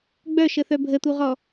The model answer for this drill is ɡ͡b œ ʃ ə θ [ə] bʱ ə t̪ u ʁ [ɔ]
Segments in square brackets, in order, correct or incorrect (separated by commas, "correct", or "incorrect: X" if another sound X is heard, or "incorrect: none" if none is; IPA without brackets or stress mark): incorrect: œ, correct